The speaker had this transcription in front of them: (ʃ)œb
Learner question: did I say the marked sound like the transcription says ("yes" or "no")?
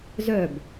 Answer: no